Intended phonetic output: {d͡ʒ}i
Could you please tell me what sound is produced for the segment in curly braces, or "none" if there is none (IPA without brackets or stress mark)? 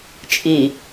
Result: t͡ʃʼ